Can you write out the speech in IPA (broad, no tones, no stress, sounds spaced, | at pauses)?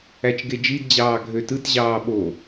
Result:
æ t͡ʃ ɡ e d͡ʒ i d d͡ʑ ɑː ɡʱ ø t ɯ t ʑ ɑː ɓ o